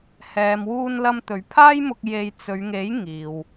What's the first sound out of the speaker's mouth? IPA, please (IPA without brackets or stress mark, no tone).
h